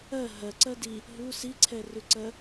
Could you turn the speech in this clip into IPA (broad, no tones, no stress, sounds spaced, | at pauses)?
ɜ ɦ ɜ ǀ ɜ d i | ɦ u s i ǀʰ ɛ r ʉ ǀ ɜ